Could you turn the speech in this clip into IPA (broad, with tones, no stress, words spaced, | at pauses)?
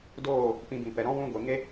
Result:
doː˦˨ | pĩ˧bĩ˨ pɛ˨ɾɔ̃˦ wũ˧ ɡʷe˨ŋe˦